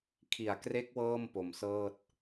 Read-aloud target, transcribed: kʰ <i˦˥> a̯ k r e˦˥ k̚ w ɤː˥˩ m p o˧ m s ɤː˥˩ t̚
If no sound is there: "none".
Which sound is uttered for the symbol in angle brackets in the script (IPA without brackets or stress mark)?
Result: i˨˩